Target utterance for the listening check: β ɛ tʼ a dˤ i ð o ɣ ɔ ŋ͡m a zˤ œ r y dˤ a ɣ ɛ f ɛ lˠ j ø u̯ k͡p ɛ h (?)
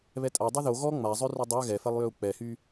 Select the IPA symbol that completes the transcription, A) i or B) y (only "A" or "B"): B